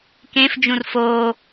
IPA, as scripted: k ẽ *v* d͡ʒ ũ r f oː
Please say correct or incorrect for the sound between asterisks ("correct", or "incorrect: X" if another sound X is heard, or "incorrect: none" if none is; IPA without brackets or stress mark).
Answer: incorrect: f